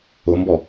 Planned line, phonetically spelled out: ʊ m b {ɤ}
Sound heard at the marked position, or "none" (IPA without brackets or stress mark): ɔ